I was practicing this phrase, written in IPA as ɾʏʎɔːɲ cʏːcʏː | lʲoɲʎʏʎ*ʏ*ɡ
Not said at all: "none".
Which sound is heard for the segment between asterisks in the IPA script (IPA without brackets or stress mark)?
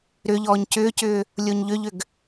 ʏ